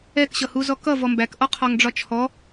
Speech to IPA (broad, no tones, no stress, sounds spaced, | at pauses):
ɛ k ɕ ʌ h u z ɔ k ʌ v ɔ m b æ k ʔ ɔ qʰ ɒ ŋ ɖ͡ʐ ɒ t͡ʃʰ ɔ